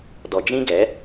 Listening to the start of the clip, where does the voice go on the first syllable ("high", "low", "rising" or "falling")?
low